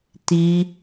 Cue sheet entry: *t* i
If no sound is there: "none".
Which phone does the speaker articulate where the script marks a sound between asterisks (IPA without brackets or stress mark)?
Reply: t